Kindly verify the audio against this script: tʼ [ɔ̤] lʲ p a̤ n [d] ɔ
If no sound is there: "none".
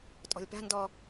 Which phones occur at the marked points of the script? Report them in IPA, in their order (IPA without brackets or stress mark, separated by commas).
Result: ɔ̤, d